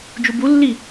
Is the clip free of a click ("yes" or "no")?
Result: yes